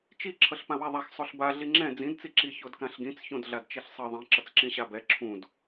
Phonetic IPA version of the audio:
t͡ʃi ǁʰʌɬpãwaðˤax sˤoɬba ɮiŋ͡ǁɛ̃ d͡zĩd t͡siǁi çodkãɬɡĩt͡s çõdɮadt͡ʃɛɬsˤɯ ðˤĩ ǁʌt͡sǁĩɕabɛ ǁʰũd

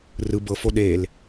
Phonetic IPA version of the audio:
rɯ bɤfo ɗel

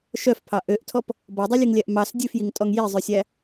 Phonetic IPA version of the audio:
ʃœfpʰɑ ʔøʔtʰɔp | bɔdˤʉlʲʉŋlʲæʔ mɑs dʲʉfjiŋtʼɔŋ jizˤʉsʲæ

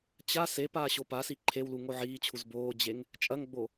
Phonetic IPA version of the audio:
t͡ɕa se paːɕopasi ǃʰewlu ŋoʕiːt͡ɕʰuz boːd͡ʑeŋ | t͡ʃʼɐŋɡ͡bo

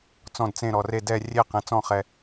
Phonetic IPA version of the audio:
t͡sɔ̃˦˨dt͡sẽ˦˨ ɾɔ˨re˦˨ dɛ˦˨ rʲe˦˨qẽ˨t͡sɔ̃˦˨χɛ˨

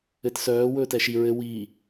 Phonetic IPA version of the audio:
ɘtsœː wɵːtɛʃi ɹɘ wiː

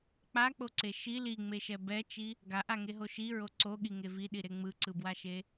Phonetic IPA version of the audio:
k͡pak͡poǀe ʃi liŋ͡meʃɛ bɛt͡ʃi | ɡaʔaŋeɦo ʃiɹo ǀoɠiŋe viɗiɾe ŋ͡mɯǀɯbwaʃe

